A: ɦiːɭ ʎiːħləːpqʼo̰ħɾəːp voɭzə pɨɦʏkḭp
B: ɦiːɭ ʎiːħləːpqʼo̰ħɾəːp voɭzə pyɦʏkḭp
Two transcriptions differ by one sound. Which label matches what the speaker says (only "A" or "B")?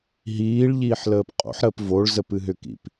A